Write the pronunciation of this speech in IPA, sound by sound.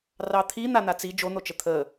r ɑ t̪ʰ i n̪ a n̪ a t͡s i d͡ʒ o n̪ o t͡ʃ ə t̪ʰ ə

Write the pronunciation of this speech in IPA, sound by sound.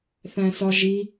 θ æ̃ s ɒ ʒ i

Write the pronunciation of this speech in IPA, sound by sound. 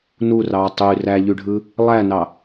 n u r ɑː tˤ y r æ ʎ y ɖʱ ɯ | lˠ æ n ɑ

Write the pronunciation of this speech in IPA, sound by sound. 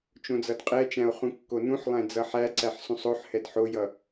t͡ʃ õ d͡z ʌ d qʼ ɛ t͡ʃ æ̃ o̯ χ ũ kː o n ũ ħ lˠ æ̃ d͡z ʌ ħ æ ǀ æ ħ s ũ sˤ o ħ h ɛ d ħ o j ʌ

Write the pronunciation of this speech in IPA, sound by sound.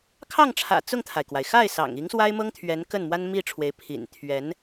kʰ ɑ˥˩ ŋ ʈ͡ʂʰ ä̰˨˩ t͡s ʊ˥˩ ŋ t̪ʰ a˩ ɪ̯ k w a˩ ɪ̯ x a˥˩ ɪ̯ s ɑ̰˨˩ ŋ i˧˥ ŋ s w a˥ ɪ̯ m ɤ˥ ŋ t̪ʰ ɥ ɛ˧˥ n k ə˥˩ n m w a˥ n m i˥˩ ʈ͡ʂʰ w e˧˥ ɪ̯ pʰ ḭ˨˩ n t̪ʰ ɥ ɛ˧˥ n

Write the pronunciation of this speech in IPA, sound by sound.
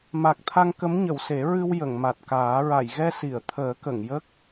m a˨˩ k̚ t̪ʰ a˧ ŋ k ə˧˥ m ɲ ə˨˩˨ w s e˨˩˦ ɹ ɨ˧ w j ə˨˩˨ ŋ m a˨˩ t̚ k aː˨˩˦ ɹ a˨˩˨ j ɣ ɛ˧ s i˨˩˨ ə̯ t̪ʰ əː˨˩˦ k ə˨˩˨ ŋ j ə˦˥ k̚

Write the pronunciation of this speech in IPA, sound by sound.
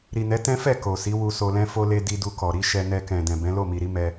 ɾ i˨ n ɛ˨˦ t ɛ̃˦ f ɛ˦˨ k o˨ s i˨˦ w u˧ s o˧ l ɛ̃˦ f o˧ l e˧ d i˧ d u˧ k ɔ˨ ɾ i˨˦ ʃ ɛ˧ n ɛ˧ k ɛ̃˨ d ɛ̃˨ b ɛ̃˨˦ l o˦˨ m i˨ ɾ i˨˦ m ɛ˦

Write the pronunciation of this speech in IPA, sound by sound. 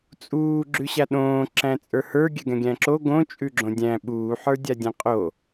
t͡sʼ uː ɡ͡ǁ ʉ ɕ a ɗ õː ǁ æ̃ t͡sʼ ə˞ h ə˞ ɡʲ ɛ ɡ ɛ̃ ɡʲ æ̃ ǁ o ɡ õ t͡ʃʼ ʉ ɡ͡ǁ õ dʲ æ̃ ɓ uː ħ ə˞ dʲ a dʲ ɛ̃ qʼ o

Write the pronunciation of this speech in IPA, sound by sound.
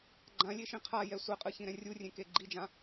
ɡ͡ǃ ã lʲ e ʃ ĩ qʰ a j ɛ sʷ ɛ qʼ ɯ ç ĩ ɾ ɛ̃ rʲ u rʲ ẽ k e ɡ͡ǃ i d͡ʒ ã

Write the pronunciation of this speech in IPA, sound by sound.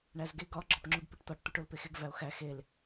ɳ æ z ɡ e ɡ ɒ ɡ͡ǁ ɒ p ŋ͡ǁ u ɡ p i ʈ t̪ ɒ ʈ t̪ u ʈ o l p e x e ɡ v æ o̯ x æ x e l

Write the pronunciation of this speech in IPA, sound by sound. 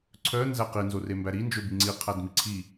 ǀʰ œ n z æ q i n z o r e m b æ ɾ i n d͡ʒ ɵ b i ŋ͡ǀ i qʰ æ d m i ǀʰ i

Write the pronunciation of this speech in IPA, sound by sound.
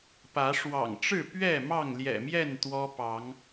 p ä˨˦ ʂ w ɑ̰˨˩ ŋ ʈ͡ʂ ɻ̩˥˨ p ɥ ɛ˥˨ m ɑ˥˨ ŋ l j ɛ̰˨˩ m j ɛ˥˨ n t̪ w ɔ˦ p ɑ˨˦ ŋ

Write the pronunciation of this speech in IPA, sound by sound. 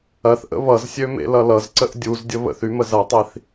ɐ θ ʔ ə̰ β ʌ z sʲ ø m ḛ l ʌ l ʌ z ǀ ə ʔ dʲ u z dʲ ə β ə̰ θ y m ə z ɐ tˤ i θ

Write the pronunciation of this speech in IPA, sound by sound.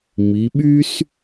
m i˩˧ ɓ y˥ s

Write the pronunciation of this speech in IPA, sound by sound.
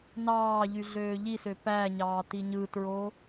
n ɑː ʎ y ɮ øː ʎ i s ø p æ ɲ ɑː t i ɲ ɯ t ɹ o

